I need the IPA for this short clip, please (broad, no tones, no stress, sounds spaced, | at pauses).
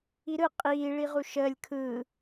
i ɾ ɯ qʼ iː ɭ i ʁ u ʃ əː lʲ kʰ ɯː